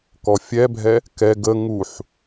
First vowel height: mid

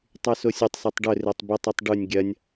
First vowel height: high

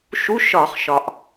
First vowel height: high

